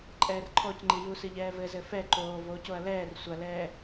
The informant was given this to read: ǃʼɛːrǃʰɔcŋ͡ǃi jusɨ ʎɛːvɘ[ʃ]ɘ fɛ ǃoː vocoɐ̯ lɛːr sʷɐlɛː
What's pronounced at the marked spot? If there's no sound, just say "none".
z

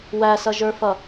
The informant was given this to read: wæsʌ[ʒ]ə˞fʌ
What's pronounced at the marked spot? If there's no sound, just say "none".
ʒ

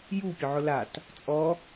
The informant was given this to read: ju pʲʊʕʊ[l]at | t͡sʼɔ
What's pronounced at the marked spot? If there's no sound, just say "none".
l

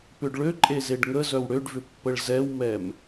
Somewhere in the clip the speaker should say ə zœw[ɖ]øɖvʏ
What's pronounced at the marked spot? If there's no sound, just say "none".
ɽ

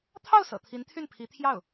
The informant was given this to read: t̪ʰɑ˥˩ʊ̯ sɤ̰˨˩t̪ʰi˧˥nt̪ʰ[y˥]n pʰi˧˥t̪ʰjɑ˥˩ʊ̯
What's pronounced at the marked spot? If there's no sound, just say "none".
y˥˩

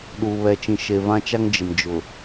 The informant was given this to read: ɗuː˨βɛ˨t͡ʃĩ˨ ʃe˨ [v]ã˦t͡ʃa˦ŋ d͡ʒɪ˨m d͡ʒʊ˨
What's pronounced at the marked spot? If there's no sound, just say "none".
v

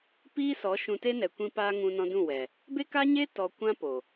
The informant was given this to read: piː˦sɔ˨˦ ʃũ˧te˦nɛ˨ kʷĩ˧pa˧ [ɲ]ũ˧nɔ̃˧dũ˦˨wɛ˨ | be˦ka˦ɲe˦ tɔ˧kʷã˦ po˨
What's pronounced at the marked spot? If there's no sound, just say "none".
ŋ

